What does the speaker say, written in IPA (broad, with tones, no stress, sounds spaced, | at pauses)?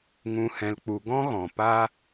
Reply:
ŋ ũ˨ h ɛ̃˨ l k͡p u˨ ɡ ɔ̃˦ ɣ ɔ̃˨ p a˦